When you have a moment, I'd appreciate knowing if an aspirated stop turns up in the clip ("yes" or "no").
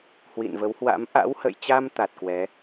no